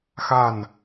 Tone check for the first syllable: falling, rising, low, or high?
falling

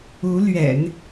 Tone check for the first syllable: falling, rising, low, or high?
rising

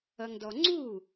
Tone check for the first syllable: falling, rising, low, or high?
low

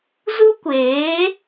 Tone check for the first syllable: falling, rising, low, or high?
high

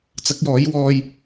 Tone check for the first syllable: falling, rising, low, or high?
rising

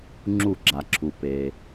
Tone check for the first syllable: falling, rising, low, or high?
falling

